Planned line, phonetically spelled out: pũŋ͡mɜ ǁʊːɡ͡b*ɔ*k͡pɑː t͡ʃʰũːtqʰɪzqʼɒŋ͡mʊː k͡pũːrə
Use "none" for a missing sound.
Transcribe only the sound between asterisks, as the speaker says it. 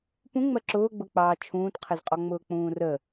ʊ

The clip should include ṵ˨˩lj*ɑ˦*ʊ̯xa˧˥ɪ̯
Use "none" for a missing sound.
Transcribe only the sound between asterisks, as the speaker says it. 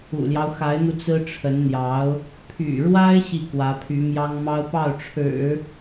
ɑ˦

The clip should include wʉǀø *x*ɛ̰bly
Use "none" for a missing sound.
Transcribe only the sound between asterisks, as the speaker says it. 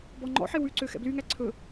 x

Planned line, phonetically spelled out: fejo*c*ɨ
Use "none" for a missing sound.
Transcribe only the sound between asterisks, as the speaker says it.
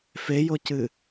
c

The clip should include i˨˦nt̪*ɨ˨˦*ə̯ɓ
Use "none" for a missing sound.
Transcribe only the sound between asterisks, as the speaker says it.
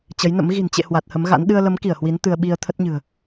ɨ˧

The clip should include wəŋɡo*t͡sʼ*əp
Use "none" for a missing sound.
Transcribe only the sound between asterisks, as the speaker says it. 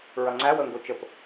t͡ʃ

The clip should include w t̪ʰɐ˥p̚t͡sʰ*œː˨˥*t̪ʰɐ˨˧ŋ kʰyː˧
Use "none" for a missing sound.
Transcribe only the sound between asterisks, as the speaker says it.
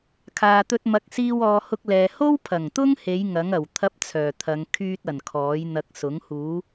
œː˨˩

